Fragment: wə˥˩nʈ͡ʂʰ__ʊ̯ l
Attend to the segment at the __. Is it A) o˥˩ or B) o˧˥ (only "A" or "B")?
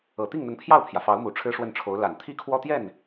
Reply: B